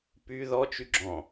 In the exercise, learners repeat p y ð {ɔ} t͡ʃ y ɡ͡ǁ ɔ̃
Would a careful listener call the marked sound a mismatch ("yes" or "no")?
no